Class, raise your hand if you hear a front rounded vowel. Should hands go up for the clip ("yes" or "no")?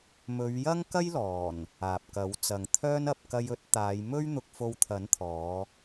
yes